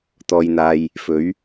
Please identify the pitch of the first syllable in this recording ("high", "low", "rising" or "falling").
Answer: low